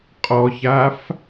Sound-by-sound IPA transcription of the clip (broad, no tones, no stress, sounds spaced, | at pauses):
qʼ ɔ ç a f